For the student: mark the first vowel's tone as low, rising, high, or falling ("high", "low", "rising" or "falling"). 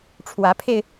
rising